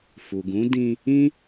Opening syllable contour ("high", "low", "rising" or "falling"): low